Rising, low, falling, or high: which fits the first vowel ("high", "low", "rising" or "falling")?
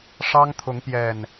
high